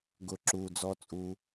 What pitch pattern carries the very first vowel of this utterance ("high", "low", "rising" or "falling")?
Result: low